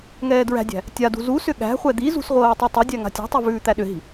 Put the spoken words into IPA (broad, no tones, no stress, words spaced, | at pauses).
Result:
ŋɛːdɹæ̤dʲæ̤ | tʲadṳ zu sʏɠæ̤χʷɛ d̪izṳs ʁʷɤːtˤutˤɤdʲæ ŋa̤tʲa̤tˤʉ vʉːt̪æɗʏɦi̤